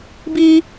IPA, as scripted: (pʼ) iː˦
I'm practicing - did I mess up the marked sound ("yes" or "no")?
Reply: yes